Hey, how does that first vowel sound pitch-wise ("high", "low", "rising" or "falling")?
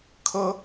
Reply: high